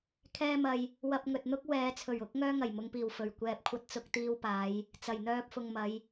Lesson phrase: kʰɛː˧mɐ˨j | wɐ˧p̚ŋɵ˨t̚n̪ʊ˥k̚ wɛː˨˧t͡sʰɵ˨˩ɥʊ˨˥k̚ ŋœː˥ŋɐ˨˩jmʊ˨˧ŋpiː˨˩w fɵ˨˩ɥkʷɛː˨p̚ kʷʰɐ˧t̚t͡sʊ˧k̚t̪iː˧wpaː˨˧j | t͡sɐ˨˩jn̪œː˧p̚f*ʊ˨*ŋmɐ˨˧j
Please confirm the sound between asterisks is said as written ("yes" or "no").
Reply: yes